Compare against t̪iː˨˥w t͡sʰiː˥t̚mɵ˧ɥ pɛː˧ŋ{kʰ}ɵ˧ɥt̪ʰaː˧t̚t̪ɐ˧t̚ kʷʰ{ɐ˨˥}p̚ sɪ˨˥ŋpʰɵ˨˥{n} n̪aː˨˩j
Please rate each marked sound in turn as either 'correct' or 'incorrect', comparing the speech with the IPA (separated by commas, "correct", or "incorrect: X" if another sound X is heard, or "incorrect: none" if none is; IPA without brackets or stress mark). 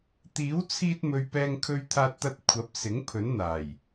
correct, correct, correct